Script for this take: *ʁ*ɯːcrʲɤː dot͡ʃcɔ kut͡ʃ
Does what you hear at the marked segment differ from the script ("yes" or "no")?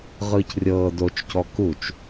no